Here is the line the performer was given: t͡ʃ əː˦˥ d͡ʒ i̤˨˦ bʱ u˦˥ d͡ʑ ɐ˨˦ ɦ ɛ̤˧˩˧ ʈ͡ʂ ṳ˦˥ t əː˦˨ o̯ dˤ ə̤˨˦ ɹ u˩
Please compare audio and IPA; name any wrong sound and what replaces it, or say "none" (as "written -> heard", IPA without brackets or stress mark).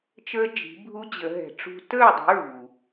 ɐ˨˦ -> ə˨˦